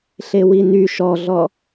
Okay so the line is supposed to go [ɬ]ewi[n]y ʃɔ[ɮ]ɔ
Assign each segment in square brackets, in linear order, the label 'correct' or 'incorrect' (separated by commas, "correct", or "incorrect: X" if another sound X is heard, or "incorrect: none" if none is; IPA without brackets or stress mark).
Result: correct, correct, correct